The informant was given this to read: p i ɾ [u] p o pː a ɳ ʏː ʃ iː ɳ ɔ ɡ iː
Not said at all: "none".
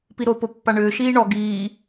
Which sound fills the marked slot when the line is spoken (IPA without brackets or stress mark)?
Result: o